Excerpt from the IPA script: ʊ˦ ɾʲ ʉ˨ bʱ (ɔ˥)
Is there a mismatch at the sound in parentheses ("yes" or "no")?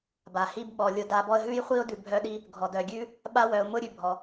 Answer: yes